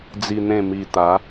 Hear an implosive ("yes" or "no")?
no